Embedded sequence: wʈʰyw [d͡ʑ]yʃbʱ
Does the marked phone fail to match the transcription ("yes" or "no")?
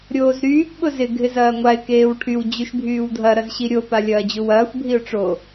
no